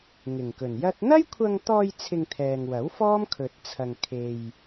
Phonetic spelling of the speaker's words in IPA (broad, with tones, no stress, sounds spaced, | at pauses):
ŋ ɪ˨˩ ŋ k ɵ˨˩ n j ɐ˥ t̚ n̪ ɐ˥ j kʷʰ ɐ˧ ŋ t̪ ɔː˧ j t͡sʰ ɪ˧ ŋ t̪ʰ ɛː˨ ŋ w ɐ˨˥ w f ɔː˥ m kʰ ɵ˧ t̚ t͡sʰ ɐ˧ ŋ kʰ e˧ j